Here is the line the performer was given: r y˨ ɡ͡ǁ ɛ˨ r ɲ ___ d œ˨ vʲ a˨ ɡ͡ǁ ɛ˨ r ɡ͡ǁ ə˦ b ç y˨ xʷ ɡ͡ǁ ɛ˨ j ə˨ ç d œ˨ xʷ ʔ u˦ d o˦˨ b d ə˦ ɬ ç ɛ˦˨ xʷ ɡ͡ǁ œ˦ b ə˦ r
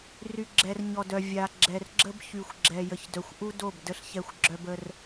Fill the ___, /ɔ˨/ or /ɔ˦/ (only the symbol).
ɔ˨